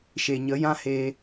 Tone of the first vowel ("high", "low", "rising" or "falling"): low